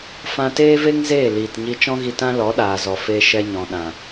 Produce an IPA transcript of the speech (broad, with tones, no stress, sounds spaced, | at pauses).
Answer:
f ã˧ t eː˦ v e˦ ŋ z eː˦˨ l iː˨ t ɲ i˧ t͡ʃ ɔ̃˦ ɣ i˧ t ã˦ l ɔ˨˦ ɗ aː˨ z ɔ˨ f e˧ ʃ ɛ˧ ɲ ɔ̃˨ ɗ ã˨